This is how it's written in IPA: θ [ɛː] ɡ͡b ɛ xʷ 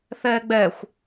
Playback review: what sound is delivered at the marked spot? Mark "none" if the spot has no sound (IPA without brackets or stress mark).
ɛː